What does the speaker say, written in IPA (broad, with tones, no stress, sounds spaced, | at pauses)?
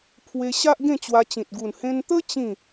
pʰ w e˧ ɕ a˦ ʔ ɡ ẽ˥˧ t͡ɕ w a˧ t͡ɕ ĩ˨ t̚ ɡ u˨˩ n h ẽ˧ n t̪ ə˦ t͡ɕ ĩ˥˧